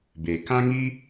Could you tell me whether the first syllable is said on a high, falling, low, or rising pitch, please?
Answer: low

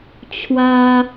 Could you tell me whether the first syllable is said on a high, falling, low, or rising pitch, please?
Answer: high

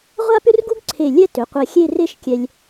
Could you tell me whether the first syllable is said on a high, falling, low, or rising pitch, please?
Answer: high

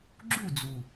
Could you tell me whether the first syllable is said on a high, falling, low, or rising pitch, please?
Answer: falling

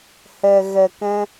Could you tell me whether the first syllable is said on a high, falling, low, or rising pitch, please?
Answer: low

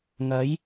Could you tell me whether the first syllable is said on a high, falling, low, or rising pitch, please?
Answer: rising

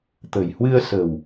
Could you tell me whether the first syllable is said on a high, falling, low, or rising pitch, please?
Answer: low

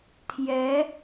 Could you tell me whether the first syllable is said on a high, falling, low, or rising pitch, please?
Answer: rising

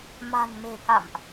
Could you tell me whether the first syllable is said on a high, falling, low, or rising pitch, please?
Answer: low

